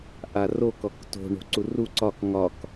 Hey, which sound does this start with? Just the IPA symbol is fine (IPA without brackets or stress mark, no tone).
ʔ